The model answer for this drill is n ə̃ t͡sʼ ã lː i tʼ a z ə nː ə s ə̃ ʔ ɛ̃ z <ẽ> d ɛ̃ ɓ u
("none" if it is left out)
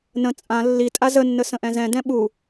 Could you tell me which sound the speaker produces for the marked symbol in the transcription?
ɛ̃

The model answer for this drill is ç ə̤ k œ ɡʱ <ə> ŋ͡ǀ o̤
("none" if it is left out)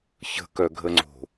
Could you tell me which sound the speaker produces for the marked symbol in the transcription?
ə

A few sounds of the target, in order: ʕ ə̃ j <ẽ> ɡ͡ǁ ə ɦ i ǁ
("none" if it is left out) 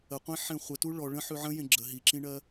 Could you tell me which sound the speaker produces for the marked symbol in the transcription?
ẽ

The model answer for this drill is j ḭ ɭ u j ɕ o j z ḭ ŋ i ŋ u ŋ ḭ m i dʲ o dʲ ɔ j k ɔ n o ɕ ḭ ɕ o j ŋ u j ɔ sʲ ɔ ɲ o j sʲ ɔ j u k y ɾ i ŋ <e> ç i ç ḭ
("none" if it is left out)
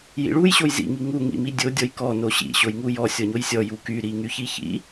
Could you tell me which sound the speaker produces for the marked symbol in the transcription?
y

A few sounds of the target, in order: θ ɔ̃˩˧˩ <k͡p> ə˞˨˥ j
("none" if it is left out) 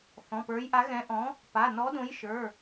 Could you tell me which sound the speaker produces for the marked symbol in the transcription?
p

